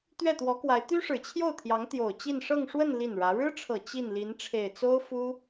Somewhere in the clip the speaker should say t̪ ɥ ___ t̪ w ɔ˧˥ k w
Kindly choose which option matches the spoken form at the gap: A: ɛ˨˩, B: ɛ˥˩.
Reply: B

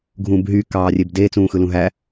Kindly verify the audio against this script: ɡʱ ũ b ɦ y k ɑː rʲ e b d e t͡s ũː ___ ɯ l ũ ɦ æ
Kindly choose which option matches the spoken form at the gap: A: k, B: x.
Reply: B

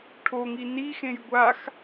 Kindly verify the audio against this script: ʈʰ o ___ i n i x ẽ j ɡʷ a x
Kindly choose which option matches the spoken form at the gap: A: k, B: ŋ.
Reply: B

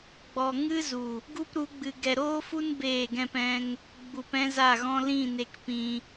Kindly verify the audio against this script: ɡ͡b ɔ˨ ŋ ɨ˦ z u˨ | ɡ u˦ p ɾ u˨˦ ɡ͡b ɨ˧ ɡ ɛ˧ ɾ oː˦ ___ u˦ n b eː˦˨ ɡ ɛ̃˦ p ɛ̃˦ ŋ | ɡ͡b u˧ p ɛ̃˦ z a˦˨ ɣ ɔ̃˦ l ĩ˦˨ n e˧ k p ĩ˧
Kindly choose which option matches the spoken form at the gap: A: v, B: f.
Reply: B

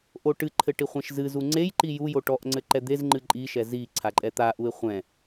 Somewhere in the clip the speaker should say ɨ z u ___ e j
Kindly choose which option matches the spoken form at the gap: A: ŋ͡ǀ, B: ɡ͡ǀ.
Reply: A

